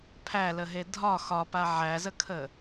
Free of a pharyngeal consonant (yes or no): no